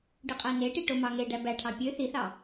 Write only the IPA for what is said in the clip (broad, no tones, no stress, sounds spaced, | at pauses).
ɖ ɯ qʼ æ n e ʈ i ʈ o m ɑ ŋ e ɖ æ b æ ʈʰ ɑ pʲ ø θ i θ ɑ